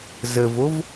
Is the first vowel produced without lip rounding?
yes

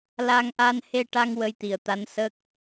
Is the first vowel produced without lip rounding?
yes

